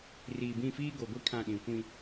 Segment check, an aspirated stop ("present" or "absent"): present